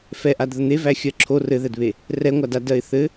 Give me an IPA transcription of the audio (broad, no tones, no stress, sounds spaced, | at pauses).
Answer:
f ɛ ʔ a d ð ə n̪ e v æ xʲ ɜ ǁʰ o r ɘ ð ɛ d β e | r ɛ ŋʷ a d a d ɜ ɪ̯ θ ɘ